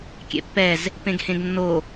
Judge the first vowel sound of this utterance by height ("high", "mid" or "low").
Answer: mid